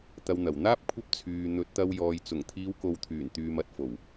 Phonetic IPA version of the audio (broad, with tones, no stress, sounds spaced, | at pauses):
t̪ ɐ˨ w n̪ ɐ˨˩ w n̪ aː˥ p̚ kʷʰ ɐ˥ p̚ t͡sʰ yː˨ n̪ ɵ˨˥ t̚ t̪ ɐ˧ w j ɔː˨ j t͡s ʊ˨˩ ŋ t̪ʰ iː˨˧ w k o˨ w t̪ʰ yː˨˩ n t̪ yː˨ m ɐ˨ t̚ f o˨˩ w